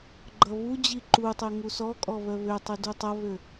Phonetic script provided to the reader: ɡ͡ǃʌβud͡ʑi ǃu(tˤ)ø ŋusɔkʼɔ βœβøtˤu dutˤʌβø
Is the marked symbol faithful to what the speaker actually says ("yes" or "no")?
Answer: yes